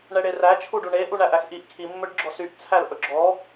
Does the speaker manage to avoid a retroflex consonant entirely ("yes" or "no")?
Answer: no